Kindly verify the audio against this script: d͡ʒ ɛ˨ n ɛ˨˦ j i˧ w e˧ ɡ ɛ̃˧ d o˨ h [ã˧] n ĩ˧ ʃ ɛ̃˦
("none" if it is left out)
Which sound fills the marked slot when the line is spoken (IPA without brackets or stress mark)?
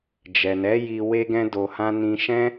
ã˧